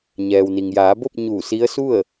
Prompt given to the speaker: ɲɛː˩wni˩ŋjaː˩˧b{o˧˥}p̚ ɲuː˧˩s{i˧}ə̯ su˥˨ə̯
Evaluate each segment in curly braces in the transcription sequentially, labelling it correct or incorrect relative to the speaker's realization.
incorrect: o˥˨, incorrect: i˧˥

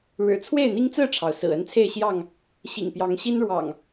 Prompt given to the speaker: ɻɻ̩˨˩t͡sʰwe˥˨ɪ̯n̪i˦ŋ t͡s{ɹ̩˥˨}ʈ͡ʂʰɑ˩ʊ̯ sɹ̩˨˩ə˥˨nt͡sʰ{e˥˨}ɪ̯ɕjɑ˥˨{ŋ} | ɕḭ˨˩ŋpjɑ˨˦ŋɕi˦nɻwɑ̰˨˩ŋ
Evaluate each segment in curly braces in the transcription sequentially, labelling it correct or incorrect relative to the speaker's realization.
correct, correct, correct

